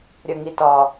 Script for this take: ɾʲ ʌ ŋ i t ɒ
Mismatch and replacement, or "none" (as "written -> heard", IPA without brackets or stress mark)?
none